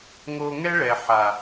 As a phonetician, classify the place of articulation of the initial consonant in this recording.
velar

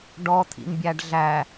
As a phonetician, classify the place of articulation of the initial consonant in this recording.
retroflex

